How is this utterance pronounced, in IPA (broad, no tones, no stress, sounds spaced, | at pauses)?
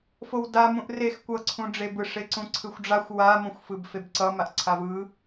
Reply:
f o w d a m ũ ʔ r e x kʷ ʌ ǀʰ ũ ɖ͡ʐ e b ɯ ʂ e ǀ ũ ǀʰ ɯ xʷ ɖ͡ʐ a xʷ w a m õ xʷ f ɯ b f e b ǀ ʌ m a ʔ ǀʰ a v ɯ